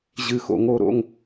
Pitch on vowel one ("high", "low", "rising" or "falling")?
falling